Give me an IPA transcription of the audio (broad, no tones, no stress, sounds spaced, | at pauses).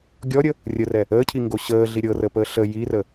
ɡʲ ɔ ɾʲ ə | rʲ ə r ɛ | əː cʰ i ŋ ɡ o ɕ əː ɮ i ɾʲ ɤ r ə p əː ɬ ə j i r ə